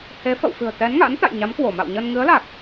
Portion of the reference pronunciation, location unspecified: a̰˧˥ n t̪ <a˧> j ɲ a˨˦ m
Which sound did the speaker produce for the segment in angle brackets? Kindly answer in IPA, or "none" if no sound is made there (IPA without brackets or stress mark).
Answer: a̰˧˨